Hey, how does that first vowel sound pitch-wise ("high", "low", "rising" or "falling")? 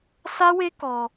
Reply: high